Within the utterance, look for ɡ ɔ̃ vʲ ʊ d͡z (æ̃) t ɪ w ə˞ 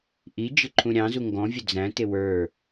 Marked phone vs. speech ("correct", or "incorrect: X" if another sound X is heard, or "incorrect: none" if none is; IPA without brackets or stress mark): correct